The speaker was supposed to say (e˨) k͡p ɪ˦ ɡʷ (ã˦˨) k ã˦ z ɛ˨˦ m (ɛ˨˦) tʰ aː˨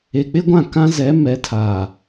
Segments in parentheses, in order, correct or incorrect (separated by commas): correct, correct, correct